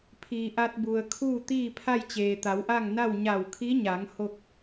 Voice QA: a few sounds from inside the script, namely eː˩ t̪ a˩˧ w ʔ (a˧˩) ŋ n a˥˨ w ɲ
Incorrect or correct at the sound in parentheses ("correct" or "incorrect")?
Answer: incorrect